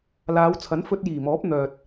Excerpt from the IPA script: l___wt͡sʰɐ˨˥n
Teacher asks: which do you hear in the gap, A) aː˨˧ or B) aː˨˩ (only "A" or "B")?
A